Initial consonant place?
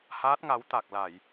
glottal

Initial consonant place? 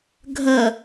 velar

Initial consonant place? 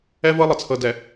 labial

